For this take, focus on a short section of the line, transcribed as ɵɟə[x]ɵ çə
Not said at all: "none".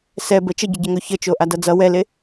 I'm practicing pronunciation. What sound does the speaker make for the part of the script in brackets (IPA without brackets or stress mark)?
ŋ